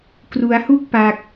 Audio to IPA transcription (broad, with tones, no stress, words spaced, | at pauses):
kru˦˥a̯hu˥˩k̚pa˦˥k̚